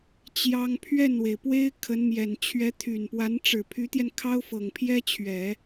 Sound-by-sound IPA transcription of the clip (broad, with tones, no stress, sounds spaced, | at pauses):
t͡ɕ j ɑ˥ ŋ pʰ ɥ ɛ˥˩ n w e˩ ɪ̯ p w e˥ ɪ̯ kʰ ə˧˥ n m j ɛ˨˩ n t͡ɕʰ ɥ ɛ˧˥ t̪ʰ y˨˩ n p w a˧˥ n ʈ͡ʂ ɻ̩˨˩ pʰ y˧˥ t̪ j ɛ˧ n kʰ ɑ˥ ʊ̯ f ɤ˨˩ ŋ pʰ j ɛ˥ t͡ɕʰ ɥ ɛ˨˩˦